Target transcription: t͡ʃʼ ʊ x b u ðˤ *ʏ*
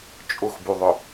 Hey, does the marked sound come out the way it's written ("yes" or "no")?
yes